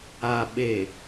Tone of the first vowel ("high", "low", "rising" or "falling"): low